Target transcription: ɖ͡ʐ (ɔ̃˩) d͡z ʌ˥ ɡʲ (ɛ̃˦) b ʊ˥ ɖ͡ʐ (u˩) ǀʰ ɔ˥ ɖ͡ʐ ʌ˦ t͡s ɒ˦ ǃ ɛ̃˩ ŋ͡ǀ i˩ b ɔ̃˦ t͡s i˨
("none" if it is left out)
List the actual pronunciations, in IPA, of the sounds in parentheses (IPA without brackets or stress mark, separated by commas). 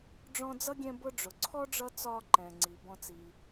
ɔ̃˦, ɛ̃˦, ʊ˩